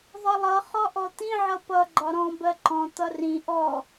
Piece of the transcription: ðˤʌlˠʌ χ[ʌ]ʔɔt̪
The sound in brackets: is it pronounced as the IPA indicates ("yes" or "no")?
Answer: no